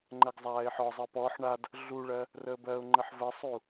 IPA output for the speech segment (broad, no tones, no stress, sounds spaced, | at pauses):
ŋ͡ǃ ɜ ɡ zˤ aː ɪ̯ ħ ɔ zˤ ɜ p ɔː ħ ɳ a d | ɮ u ɭ ɜ | r əː b ɜ ʊ̯ ŋ͡ǃ ə ħ v ə sˤ u